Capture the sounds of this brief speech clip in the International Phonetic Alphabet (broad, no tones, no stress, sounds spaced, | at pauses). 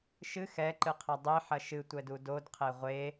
ʃ ɨ x ɛ ǃ ɨ qʰ ɐ dˤ e ħ ɐ ʃ ɨ tʷ ɛ d u d o d qʰ e ʁʷ e